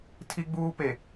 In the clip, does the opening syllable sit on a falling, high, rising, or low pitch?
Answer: high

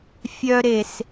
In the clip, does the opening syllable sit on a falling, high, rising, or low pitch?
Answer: high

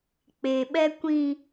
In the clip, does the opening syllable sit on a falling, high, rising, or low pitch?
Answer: low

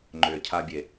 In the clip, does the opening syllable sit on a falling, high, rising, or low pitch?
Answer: low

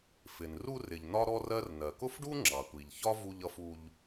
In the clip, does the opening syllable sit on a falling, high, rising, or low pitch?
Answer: low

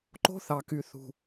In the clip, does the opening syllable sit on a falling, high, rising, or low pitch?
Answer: high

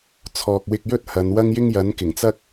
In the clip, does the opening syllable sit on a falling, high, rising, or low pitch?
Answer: low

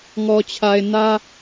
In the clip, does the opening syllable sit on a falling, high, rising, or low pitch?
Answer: low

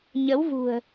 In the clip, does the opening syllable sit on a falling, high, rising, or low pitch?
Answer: rising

